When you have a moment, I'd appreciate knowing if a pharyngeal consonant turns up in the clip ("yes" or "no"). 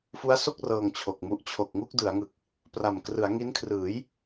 no